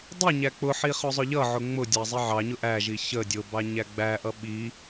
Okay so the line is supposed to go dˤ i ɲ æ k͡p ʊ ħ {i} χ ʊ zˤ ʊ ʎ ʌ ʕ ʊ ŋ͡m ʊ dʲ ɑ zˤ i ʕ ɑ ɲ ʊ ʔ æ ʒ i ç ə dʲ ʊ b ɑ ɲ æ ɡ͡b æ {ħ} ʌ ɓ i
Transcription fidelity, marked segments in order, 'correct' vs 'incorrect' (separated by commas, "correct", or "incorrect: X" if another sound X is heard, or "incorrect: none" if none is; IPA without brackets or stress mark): correct, incorrect: ʔ